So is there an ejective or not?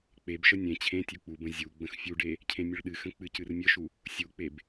no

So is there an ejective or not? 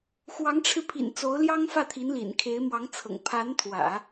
no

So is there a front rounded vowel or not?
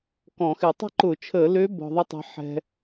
yes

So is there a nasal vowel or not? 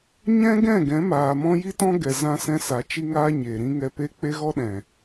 yes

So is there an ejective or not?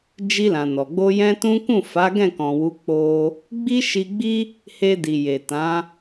no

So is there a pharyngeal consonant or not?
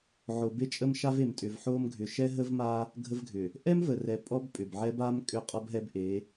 yes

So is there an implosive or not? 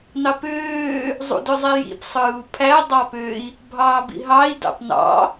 no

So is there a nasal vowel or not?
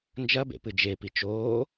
no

